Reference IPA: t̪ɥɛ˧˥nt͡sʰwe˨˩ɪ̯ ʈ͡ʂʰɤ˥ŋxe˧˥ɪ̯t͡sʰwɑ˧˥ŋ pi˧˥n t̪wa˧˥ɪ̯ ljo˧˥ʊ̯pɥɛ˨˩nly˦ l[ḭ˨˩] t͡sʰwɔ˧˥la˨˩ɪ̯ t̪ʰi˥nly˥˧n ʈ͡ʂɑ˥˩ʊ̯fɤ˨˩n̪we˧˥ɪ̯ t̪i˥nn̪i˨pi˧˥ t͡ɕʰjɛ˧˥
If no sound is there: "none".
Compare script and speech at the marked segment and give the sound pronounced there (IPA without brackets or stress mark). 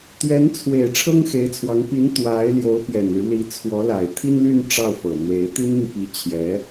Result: i˧˥